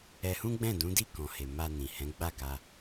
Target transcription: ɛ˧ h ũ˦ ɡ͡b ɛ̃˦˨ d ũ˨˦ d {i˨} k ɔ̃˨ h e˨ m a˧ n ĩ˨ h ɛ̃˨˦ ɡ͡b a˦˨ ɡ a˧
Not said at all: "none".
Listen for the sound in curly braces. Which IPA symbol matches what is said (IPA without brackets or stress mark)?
i˦˨